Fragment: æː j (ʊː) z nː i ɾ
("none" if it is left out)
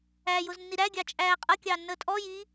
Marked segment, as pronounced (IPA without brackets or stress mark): ʊː